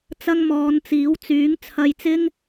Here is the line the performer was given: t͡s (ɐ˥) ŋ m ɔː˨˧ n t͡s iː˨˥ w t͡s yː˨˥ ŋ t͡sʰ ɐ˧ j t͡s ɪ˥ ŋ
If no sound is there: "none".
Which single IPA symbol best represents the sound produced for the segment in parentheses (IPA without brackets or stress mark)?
ɐ˥